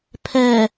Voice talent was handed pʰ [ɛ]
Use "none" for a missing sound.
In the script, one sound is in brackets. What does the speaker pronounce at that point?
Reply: ɛ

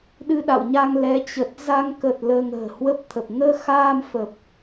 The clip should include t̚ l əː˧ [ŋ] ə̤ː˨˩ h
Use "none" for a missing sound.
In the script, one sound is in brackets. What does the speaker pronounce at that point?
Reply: ŋ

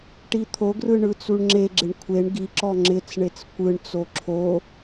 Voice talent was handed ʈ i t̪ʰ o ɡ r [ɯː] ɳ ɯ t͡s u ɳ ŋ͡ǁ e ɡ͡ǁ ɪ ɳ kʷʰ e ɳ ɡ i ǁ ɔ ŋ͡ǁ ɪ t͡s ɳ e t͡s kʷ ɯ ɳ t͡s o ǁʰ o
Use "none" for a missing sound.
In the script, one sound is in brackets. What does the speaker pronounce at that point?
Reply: ɯ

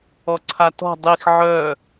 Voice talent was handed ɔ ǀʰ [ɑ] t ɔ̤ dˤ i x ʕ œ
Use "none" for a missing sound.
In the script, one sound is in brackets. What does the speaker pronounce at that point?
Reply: a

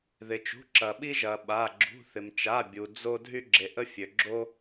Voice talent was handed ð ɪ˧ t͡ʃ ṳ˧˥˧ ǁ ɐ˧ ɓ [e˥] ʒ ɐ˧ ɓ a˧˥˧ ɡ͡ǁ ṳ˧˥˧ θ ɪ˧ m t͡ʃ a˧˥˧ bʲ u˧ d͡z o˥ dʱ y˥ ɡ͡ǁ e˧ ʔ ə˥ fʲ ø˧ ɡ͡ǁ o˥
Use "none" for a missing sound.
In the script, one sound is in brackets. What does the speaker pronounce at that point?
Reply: i˥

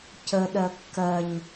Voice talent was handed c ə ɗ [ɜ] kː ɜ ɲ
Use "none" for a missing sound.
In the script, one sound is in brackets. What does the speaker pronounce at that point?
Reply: ɜ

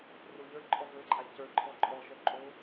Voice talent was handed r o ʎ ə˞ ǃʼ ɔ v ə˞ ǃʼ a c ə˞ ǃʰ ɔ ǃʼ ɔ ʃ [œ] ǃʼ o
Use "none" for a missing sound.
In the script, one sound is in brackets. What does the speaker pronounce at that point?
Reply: œ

